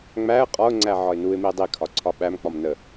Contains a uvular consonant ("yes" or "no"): yes